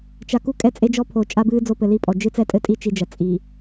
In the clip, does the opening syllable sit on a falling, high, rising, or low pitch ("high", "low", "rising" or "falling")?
low